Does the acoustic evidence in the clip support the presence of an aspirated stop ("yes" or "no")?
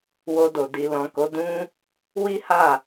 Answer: no